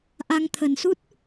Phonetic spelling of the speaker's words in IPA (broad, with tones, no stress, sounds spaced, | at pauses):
ʔ a˧ ŋ t̪ʰ ə˨˩ n s u˦˥ t̚